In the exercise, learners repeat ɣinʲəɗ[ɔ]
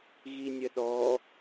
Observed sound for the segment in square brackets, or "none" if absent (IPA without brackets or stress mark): ɔ